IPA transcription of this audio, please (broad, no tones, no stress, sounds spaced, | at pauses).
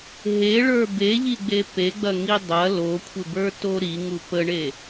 ɦ e ɭ ə˞ b e ʎ i ɡ͡b e p e ɡ͡b ɐ ŋ i dˤ ɐ l o kʷʰ ɪ b ə˞ t o ɾ i ŋ u p ə ɳ e